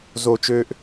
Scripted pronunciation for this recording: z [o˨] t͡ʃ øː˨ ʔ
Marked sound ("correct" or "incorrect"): correct